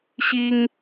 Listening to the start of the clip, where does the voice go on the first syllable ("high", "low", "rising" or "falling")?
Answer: high